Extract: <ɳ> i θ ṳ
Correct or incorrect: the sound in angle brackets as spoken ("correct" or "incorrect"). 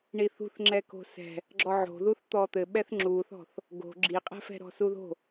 correct